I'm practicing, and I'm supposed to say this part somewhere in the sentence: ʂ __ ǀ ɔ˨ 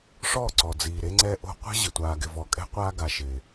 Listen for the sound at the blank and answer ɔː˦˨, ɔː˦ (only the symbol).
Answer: ɔː˦˨